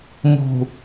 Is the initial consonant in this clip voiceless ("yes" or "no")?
no